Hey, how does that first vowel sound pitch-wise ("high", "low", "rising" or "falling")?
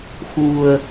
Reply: low